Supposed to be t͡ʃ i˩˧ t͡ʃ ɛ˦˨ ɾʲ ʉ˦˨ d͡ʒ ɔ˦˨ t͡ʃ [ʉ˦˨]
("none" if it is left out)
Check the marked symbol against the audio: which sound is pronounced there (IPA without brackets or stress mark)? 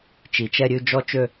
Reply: ø˦˨